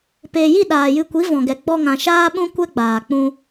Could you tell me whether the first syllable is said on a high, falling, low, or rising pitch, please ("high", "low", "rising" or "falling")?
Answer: low